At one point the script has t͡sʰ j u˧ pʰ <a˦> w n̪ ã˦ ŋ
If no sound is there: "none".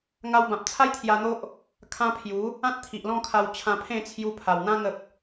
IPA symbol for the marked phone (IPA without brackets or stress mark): a˨˩